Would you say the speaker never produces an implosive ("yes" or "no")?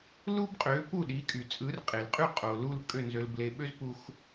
no